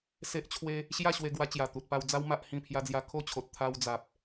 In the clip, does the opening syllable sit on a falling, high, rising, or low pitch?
high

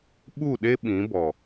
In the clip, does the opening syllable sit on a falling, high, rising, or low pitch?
falling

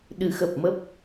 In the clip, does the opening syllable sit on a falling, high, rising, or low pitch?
rising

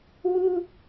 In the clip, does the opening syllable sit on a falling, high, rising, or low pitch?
high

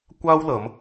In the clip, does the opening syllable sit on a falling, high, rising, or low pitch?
high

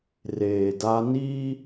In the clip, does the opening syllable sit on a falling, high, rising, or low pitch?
low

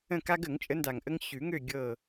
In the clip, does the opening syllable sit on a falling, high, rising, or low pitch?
falling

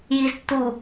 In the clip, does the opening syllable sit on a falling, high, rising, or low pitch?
low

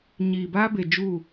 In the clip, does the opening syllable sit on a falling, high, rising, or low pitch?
low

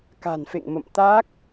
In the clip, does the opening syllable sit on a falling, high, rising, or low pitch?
low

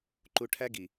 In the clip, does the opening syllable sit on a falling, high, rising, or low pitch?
low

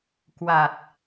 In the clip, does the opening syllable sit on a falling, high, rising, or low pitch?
low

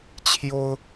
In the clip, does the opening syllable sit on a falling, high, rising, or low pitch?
high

